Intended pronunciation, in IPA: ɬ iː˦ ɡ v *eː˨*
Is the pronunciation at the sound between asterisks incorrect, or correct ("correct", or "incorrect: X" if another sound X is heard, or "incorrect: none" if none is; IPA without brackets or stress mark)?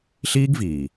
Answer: incorrect: iː˨